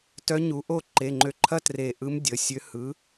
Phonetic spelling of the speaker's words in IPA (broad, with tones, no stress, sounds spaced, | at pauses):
t œ˦˥ ɲ u˨˥ ʔ o˥˧ ǃ e˩˧˩ ŋ͡ǃ ø˧˩ ǃʰ ɐ˥˧ t r e˧˩ ʔ ɯ˦˥ m dʲ ə˩˧˩ sʲ ø˦˥ h ɯ˨˥